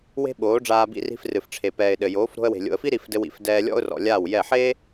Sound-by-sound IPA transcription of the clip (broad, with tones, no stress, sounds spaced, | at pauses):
w e̤˦ ɓ oː˨˦ ɖ͡ʐ aː˧ b ḭ˧ r i̤˧ f r ɨ˨ f ʈ͡ʂʰ e˨ p ɛː˨ ɪ̯ ɗ ɘ˨ j oː˨˦ f ɾ o̤˧ ə̯ w e̤˨ lʲ o̰˨ ə̯ f i˦ ɾ i˧ f d ɘ˧ w ḭ˨ f d ɛː˧ lʲ ɔ̰˦ ʊ̯ r ɔ̰˨ lʲ aː˦˨ w j ɛ˦˨ ħ eː˦